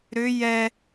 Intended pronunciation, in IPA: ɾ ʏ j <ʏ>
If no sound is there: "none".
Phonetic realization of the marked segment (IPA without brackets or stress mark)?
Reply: ɛ